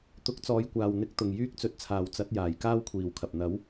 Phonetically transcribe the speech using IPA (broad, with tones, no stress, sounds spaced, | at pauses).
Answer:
t̪ ʊ˨˥ k̚ t͡s ɔː˨˧ j kʷ aː˨ w n̪ ɪ˨˥ k̚ t̪ ʊ˨ ŋ j yː˥ k̚ t͡s ɵ˨˥ t̚ t͡sʰ aː˨ w t͡s ɐ˨˥ t̚ j aː˨ j k aː˥ w kʷʰ iː˨ w kʰ ɐ˨ p̚ n̪ ɐ˨˥ w